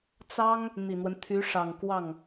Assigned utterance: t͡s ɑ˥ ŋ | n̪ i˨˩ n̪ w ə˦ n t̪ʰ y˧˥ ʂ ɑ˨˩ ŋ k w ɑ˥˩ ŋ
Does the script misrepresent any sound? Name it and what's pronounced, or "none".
none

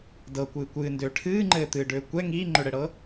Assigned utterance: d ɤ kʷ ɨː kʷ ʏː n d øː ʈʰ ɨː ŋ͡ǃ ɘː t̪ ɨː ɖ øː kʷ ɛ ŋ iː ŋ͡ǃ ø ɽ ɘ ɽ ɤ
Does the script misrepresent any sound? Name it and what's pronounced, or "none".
ʏː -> ɨː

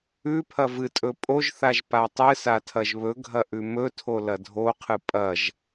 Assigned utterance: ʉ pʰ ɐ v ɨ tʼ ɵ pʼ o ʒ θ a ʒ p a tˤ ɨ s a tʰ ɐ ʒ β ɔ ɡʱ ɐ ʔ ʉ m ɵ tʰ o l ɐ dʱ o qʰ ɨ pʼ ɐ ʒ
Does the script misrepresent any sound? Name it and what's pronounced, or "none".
ɔ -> ɵ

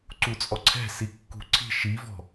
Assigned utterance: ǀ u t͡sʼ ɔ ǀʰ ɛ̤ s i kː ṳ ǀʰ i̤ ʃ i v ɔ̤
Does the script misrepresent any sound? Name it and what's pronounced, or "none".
none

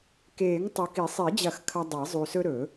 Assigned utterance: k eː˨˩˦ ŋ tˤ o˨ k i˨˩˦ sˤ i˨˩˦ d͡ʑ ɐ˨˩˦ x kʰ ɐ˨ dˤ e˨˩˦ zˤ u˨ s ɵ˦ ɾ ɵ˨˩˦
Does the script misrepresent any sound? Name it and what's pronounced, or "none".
none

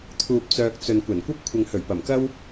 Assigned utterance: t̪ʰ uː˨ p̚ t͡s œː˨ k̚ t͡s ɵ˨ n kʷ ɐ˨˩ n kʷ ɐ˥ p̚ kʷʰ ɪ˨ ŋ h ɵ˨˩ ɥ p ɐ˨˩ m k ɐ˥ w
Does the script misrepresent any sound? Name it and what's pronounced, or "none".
none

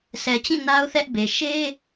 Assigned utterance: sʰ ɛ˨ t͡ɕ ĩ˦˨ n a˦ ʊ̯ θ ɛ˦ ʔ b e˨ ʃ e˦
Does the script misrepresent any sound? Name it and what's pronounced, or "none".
none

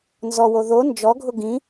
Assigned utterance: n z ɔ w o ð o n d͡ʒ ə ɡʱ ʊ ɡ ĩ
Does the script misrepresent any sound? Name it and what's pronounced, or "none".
ə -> ɔ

